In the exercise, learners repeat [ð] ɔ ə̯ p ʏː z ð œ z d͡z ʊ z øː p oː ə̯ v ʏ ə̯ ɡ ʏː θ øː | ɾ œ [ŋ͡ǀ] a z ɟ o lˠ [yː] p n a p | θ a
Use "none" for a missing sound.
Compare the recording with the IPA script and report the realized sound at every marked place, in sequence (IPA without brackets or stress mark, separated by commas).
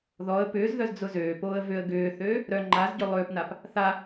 ð, ŋ͡ǃ, ʏː